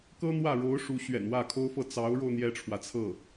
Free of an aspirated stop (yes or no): no